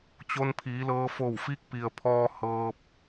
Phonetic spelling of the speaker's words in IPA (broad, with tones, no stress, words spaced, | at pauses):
t͡ɕo˧npʰiː˩˧lɤː˧fo˧˩w fi˧˥k̚pi˩ə̯ pʰɔː˧ hɤː˧p̚